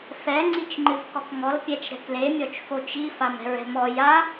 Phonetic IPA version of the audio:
f ɛ ŋ͡ǀ i t͡ʃ ŋ͡ǃ ɨ v k ɔ k ŋ ɔ l pʲ ɛ t͡ʃ ɾ ɛ̤ k l e mʲ ɔ t͡ʃ f o t͡ʃ i f a m ɛ̤ ɹ ɛ̤ m ɔ j a

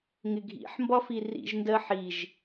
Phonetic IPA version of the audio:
ŋ ɪ ɡʱ ḭ ħ m b ɒ f i r ḭ ʒ n d ɜ ħ i ʒ

